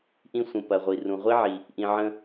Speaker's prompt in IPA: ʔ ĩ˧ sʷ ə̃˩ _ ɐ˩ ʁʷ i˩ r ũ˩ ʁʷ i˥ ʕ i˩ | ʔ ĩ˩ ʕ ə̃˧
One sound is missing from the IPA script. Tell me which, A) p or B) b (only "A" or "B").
A